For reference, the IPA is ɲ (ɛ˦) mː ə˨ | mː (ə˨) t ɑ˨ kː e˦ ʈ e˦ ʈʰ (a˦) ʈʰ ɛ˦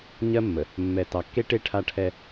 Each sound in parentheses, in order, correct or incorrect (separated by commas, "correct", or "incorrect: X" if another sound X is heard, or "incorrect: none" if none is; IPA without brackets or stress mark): incorrect: ɜ˦, incorrect: ɛ˨, correct